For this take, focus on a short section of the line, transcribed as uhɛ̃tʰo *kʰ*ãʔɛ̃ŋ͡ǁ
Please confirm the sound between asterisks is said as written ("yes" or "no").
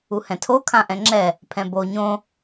yes